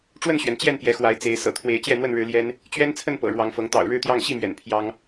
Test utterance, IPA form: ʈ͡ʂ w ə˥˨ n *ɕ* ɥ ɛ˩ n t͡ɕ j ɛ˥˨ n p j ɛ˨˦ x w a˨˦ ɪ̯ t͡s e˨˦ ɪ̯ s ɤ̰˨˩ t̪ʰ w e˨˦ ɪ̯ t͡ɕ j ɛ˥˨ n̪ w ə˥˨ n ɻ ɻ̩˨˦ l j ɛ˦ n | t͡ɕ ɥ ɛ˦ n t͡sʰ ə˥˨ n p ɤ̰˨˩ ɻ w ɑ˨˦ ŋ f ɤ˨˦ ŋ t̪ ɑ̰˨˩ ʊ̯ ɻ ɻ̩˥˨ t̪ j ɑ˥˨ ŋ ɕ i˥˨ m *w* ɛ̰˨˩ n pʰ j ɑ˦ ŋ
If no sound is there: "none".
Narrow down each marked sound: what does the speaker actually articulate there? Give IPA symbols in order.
ɕ, ɥ

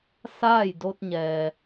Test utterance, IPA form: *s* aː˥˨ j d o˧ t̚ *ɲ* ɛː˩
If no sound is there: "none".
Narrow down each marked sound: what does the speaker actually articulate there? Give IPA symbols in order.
s, ɲ

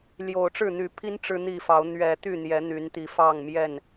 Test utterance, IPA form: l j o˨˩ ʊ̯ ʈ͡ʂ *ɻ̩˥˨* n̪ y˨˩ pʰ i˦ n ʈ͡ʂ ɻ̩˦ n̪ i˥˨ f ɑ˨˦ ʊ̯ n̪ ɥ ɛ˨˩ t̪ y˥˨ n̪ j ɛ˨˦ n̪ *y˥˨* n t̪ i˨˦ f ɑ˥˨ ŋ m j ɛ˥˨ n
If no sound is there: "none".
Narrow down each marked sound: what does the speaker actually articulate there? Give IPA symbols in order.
ɻ̩˥˨, y˨˦

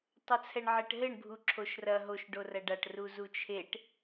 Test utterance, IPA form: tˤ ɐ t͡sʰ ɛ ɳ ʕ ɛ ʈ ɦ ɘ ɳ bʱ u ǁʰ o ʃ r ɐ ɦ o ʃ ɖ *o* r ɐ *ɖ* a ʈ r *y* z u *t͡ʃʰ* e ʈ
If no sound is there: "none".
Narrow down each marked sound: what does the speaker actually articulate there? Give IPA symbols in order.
o, ɖ, u, t͡ʃʰ

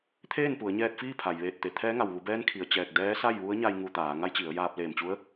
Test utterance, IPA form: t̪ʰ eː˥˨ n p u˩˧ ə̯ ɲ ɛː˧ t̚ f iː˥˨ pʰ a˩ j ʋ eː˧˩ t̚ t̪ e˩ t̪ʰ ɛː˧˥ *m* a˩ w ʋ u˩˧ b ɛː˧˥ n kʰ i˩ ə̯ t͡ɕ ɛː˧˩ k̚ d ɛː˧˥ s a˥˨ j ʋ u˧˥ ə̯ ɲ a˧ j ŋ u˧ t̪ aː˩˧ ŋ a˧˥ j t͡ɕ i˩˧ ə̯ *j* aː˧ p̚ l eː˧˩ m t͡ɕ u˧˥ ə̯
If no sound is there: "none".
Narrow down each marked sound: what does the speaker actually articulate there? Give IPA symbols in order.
ŋ, j

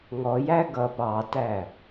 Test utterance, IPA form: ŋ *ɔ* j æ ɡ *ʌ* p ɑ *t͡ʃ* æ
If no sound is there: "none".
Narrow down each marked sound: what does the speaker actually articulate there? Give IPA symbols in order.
ɔ, ʌ, t

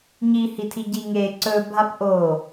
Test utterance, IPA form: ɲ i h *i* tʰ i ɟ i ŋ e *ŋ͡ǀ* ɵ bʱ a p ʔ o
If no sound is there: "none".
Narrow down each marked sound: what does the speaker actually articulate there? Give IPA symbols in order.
i, ǀ

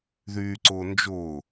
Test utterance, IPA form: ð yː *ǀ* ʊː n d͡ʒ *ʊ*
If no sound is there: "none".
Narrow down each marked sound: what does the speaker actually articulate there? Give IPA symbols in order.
ǀ, ʊː

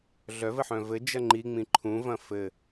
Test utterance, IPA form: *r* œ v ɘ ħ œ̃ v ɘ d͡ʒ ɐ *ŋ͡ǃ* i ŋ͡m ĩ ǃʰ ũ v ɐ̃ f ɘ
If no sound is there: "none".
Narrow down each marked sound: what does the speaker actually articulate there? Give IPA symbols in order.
ɮ, ŋ͡ǃ

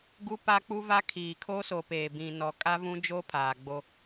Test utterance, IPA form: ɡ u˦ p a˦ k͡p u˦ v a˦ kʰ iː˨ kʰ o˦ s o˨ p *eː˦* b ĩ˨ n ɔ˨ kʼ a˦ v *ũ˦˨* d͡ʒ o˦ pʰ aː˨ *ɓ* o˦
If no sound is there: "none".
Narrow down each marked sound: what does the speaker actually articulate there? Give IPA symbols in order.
eː˨, ũ˦, ɡ͡b

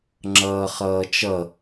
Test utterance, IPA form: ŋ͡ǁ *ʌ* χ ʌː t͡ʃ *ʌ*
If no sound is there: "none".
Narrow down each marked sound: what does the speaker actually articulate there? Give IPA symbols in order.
ʌː, ʌ

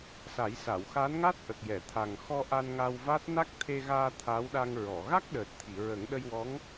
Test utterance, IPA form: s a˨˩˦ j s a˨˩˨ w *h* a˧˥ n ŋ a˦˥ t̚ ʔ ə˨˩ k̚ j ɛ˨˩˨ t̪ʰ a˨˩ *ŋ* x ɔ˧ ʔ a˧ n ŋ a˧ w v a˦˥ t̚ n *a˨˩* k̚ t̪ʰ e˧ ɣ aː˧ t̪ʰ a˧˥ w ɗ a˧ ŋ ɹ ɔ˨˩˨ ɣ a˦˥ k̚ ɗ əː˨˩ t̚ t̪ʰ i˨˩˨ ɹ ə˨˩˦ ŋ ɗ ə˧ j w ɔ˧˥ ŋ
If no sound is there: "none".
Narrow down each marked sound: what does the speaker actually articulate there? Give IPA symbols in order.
x, ŋ, a˦˥

